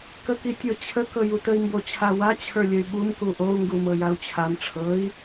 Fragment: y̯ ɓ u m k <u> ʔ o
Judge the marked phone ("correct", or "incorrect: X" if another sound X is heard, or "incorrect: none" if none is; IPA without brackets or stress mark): correct